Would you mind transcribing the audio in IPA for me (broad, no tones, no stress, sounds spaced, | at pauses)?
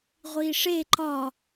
ʁʷ i ʂ e ǃ ɒ